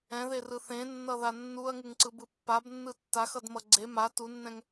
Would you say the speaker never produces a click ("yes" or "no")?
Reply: no